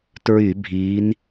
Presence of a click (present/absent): absent